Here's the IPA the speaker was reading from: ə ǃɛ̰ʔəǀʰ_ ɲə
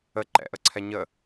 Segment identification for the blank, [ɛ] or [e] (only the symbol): ɛ